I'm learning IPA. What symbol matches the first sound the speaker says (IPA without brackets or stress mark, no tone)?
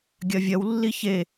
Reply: ɡʲ